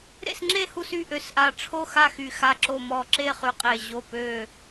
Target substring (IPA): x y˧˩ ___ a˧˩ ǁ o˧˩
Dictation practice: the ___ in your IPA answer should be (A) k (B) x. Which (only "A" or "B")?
B